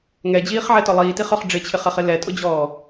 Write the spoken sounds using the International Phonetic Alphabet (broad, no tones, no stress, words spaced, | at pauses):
ŋɛd͡ʑiːχʕɛtɔ lˠiːtiχœχ ɖ͡ʐɪt͡ɕʰɪχɛχɪ lɛtʼʊd͡ʑɔː